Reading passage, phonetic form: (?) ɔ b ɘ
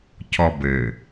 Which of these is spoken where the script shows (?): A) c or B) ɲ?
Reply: A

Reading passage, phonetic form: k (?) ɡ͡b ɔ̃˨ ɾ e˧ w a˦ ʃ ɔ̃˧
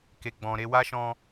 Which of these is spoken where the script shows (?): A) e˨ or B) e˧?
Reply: A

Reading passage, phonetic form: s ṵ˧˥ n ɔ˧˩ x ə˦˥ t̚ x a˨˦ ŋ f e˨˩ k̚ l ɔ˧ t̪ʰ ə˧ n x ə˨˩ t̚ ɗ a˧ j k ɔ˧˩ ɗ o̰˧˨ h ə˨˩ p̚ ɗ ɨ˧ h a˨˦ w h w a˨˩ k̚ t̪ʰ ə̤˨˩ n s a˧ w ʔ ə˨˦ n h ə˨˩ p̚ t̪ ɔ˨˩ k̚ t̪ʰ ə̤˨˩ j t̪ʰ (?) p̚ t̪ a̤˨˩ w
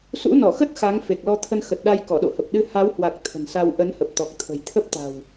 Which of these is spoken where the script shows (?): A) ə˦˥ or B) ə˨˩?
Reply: A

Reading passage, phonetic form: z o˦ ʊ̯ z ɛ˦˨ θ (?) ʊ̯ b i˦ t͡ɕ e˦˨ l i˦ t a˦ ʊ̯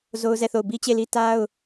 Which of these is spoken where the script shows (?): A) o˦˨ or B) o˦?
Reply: A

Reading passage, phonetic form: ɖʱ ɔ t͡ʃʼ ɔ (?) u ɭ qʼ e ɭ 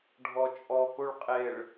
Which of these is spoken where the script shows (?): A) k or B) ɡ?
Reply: A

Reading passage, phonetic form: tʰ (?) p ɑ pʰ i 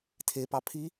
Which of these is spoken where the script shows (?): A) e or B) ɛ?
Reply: A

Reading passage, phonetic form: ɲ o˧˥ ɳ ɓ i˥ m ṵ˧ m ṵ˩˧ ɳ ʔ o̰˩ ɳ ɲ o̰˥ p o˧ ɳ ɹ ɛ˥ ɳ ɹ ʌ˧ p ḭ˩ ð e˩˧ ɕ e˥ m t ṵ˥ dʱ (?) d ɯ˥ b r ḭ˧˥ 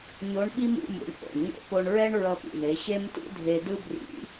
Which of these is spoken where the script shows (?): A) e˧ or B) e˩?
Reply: A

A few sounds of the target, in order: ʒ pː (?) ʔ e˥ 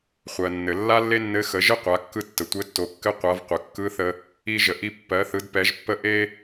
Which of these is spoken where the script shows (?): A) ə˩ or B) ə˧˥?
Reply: B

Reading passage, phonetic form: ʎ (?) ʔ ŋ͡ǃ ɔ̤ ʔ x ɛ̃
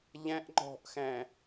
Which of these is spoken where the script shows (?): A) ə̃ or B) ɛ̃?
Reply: B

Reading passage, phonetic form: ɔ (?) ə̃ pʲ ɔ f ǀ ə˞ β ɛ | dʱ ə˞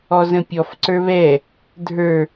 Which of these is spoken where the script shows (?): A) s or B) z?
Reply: B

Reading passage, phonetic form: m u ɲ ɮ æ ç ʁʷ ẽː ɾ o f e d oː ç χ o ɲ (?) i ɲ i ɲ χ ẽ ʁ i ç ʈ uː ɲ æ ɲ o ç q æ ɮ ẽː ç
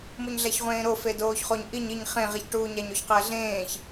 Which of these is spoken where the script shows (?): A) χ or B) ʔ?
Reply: B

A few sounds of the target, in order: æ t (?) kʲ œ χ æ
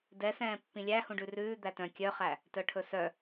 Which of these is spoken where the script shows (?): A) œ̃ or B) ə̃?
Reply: A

